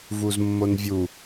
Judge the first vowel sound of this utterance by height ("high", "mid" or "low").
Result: high